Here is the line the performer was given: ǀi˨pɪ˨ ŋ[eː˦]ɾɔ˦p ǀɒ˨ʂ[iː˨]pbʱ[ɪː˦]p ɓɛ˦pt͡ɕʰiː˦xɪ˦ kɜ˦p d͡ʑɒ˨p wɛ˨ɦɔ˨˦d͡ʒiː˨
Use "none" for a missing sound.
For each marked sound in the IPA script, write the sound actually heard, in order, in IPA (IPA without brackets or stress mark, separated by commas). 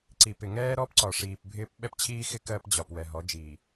ɛː˦, iː˨, ɪː˦